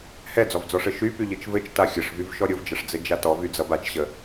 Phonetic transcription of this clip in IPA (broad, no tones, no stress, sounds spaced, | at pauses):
h ɛ d͡z ɔ v d͡z ɔ ʂ ɘ ʃ y p y ʎ ɘ t͡ʃ v ɘ t͡ʃ t a xʲ ɘ ʂ v y v ʃ ɔ ɾʲ ʊ v d͡ʒ ʌ ʂ d͡z ɘ d͡ʒ a t ɔ v y d͡z ʌ b a t͡ʃ ɕ ə